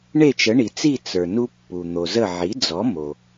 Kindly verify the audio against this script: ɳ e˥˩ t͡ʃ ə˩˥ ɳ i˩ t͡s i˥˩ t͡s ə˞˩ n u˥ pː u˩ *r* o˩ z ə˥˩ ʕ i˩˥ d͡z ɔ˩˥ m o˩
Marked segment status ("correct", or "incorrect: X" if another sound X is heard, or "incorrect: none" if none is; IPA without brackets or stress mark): incorrect: n̪